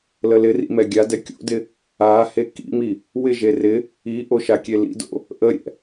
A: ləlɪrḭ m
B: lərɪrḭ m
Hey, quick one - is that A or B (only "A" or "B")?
A